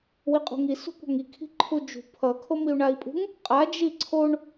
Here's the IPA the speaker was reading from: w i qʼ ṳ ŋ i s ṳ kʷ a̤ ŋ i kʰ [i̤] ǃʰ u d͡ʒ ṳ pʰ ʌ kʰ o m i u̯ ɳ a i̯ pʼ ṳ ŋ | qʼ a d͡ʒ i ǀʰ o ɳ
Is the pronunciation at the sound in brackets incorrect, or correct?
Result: correct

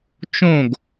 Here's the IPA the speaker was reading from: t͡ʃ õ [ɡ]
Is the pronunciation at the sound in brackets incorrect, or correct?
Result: correct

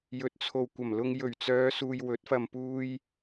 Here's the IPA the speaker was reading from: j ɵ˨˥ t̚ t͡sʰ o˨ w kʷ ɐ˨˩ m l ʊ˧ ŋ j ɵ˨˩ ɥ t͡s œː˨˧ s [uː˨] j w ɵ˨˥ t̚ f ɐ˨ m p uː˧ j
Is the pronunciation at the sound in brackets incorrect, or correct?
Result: correct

